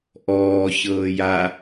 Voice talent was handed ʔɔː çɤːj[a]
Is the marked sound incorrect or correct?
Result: correct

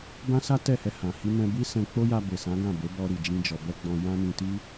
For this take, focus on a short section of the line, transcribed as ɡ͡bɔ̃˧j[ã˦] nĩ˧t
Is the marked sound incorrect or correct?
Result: correct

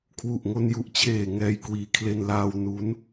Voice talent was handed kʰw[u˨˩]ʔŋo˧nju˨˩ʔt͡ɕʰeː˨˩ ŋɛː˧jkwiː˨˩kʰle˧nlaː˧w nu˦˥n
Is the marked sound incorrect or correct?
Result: correct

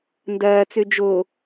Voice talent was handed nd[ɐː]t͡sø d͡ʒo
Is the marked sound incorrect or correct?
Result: correct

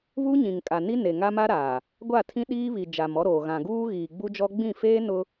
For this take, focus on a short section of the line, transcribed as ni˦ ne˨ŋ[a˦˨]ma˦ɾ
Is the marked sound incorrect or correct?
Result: incorrect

